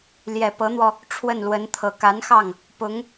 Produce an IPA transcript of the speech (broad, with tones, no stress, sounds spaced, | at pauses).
l j ɛ˨˩ p ɤ˧˥ n̪ w ɔ˧ | ʈ͡ʂʰ w ə˥˩ n l w ə˧˥ n t̪ʰ ɤ˨˩ k a˧˥ n x ɑ˥˩ ŋ | p ʊ˧˥ ŋ